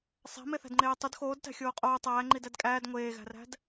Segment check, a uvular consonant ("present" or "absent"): present